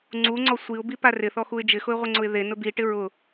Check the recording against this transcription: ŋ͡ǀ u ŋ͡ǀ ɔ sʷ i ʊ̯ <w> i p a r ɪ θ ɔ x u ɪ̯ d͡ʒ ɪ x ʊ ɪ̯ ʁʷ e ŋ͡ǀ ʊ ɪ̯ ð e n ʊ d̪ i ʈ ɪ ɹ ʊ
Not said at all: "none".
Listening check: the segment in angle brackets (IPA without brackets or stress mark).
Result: b